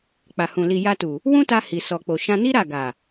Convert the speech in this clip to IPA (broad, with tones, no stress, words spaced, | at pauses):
k͡pa˨hũ˨ li˨ja˧tu˨ | wũ˦ta˧ hi˨sɔ˨k͡po˨ ʃã˧ni˦ɾa˦˨ ɡa˨